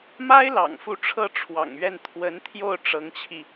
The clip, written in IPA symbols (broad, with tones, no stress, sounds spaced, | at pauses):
m a˥ ɪ̯ l ɑ̰˨˩ ŋ f u˧˥ ʈ͡ʂʰ ɤ˥˩ ʈ͡ʂʰ w ɑ̰˨˩ ŋ ɥ ɛ˥˩ n t̪ʰ w ə˧˥ n t̪ʰ j o˥˩ ʊ̯ ʈ͡ʂ ɤ˧˥ ŋ t͡ɕʰ i˧